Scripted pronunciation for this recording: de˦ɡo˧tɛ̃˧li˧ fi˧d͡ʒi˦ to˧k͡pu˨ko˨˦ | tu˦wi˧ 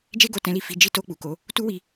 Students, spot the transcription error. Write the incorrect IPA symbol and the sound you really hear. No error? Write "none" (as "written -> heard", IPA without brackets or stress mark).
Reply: d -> d͡ʒ